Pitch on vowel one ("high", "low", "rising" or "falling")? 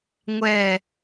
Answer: falling